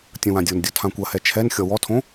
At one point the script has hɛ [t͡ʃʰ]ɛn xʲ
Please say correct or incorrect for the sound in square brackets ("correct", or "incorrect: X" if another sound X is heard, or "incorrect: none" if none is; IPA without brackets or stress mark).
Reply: correct